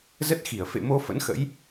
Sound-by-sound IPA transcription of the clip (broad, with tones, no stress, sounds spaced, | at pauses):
z ə˦˥ t̚ x i˧˩ ə̯ f ḛ˧˨ m o˧ f ə̰˧˥ n x ə̰˧˥ j